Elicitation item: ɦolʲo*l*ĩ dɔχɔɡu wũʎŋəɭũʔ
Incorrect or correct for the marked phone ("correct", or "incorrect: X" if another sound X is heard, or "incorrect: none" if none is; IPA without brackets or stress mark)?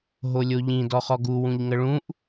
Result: incorrect: ʎ